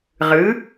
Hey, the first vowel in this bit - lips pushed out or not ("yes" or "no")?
no